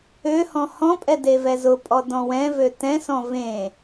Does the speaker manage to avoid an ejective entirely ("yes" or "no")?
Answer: no